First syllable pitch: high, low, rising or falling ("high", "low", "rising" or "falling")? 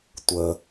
low